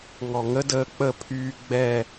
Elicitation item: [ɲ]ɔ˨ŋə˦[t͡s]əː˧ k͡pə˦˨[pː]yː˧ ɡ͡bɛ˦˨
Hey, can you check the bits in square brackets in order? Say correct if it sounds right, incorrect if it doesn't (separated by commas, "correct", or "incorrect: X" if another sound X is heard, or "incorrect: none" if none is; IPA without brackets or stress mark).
incorrect: ŋ, incorrect: d, incorrect: pʰ